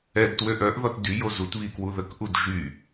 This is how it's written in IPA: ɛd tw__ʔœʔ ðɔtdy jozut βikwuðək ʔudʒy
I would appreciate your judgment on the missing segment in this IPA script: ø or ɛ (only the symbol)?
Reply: ø